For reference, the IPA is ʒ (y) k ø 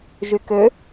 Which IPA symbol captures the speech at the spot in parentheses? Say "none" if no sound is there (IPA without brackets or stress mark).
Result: y